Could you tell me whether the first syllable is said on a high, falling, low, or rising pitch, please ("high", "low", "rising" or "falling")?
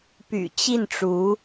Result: low